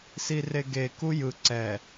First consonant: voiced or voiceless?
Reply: voiceless